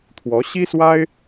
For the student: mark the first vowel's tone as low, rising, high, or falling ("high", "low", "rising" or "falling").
rising